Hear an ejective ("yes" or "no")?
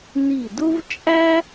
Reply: yes